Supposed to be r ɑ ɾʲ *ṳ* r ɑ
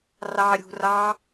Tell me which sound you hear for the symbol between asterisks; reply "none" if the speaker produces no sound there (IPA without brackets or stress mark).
ṳ